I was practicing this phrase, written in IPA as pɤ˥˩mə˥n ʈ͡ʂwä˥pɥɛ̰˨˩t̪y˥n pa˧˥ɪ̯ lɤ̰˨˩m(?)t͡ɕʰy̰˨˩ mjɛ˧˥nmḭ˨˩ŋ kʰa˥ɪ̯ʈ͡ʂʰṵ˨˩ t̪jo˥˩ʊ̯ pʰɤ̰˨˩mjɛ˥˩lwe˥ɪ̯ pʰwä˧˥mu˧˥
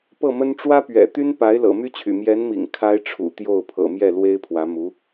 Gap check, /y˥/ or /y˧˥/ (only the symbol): y˥